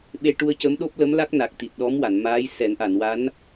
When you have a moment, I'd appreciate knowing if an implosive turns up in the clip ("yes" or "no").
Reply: yes